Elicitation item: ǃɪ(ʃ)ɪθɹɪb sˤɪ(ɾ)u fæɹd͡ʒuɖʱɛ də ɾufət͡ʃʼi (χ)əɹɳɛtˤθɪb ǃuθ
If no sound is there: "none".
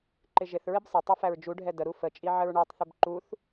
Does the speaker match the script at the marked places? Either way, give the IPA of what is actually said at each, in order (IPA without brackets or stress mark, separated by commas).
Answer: ʒ, tˤ, ʕ